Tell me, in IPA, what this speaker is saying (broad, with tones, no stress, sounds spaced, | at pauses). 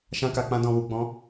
ʃ ã˧ k a˨ k͡p ã˧ d ɔ̃˨ w u˨ ɡ͡b ɔ̃˨˦